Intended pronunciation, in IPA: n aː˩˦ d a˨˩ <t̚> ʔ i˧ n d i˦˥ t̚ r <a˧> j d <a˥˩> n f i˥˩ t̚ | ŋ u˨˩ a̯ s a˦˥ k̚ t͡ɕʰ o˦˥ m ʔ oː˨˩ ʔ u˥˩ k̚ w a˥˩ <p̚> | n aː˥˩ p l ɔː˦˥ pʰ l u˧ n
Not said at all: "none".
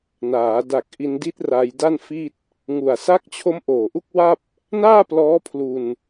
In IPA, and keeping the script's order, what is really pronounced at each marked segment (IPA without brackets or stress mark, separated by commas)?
k̚, a˧, a˥˩, p̚